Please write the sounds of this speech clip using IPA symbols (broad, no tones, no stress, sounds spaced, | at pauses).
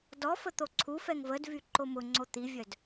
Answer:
d ɔ f ə t̪ o ǀʰ u f ɛ ŋ v ə d v y ǃ o m ʊ ŋ͡ǀ o t̪ i vʲ œ d